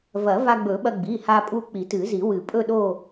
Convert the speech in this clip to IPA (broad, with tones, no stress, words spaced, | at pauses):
vɐ˨˩˦va˧ɡ͡bɵ˨˩˦ɓɐ˧ ɡ͡bi˩˧˩ha˧pʼu˧ k͡pi˨˩˦tɨ˨˩˦zi˨˩˦ wɨ˨˩˦pʼɵ˥˧ɗo˥˧